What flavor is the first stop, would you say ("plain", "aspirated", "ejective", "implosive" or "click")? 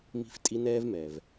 ejective